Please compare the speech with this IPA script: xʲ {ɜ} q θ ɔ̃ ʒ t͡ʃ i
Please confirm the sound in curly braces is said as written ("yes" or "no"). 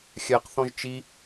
yes